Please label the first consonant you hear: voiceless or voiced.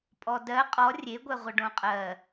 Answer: voiceless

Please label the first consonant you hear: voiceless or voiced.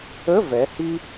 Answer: voiced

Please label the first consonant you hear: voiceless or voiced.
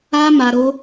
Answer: voiced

